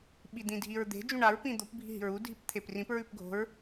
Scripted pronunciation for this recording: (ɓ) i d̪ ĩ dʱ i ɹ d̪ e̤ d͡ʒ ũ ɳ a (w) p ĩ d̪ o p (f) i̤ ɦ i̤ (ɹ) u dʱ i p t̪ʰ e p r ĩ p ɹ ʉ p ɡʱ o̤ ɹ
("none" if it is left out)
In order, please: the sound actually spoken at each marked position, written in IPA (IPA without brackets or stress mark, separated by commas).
ɓ, ɹ, bʱ, ɹ